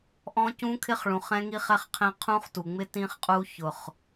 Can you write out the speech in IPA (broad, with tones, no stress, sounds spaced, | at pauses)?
ʔ ɔ̃˦˥ c ũ˦˥ kʰ ɪ˦˥ χ ɭ ũ˨˩ χ ɛ̃˦˥ ŋ i˦˥ χ ɛ˦˥ χ qʰ ɛ̃˦˥ qʰ ũ˦˥ χ t u˨˩ ŋ͡m ɪ˦˥ t ĩ˦˥ χ qʼ u˦˥ ç ʊ˨˩ χ